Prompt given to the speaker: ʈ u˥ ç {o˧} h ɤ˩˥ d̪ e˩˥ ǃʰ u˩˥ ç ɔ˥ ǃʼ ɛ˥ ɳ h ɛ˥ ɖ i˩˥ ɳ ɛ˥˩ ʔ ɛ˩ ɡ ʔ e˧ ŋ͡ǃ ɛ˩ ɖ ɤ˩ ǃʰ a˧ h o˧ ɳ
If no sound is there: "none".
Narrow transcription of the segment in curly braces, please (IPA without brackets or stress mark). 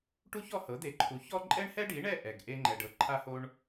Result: ɔ˧